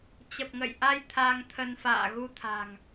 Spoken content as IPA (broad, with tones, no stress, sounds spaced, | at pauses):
t͡ɕ ə˨˩ p̚ ŋ ə̰˧˨ j ʔ a˧ j t̪ʰ a˧ ŋ t̪ʰ ə˧ n f a̰ː˧˨ ɣ u˧ t̪ʰ a̤˨˩ ŋ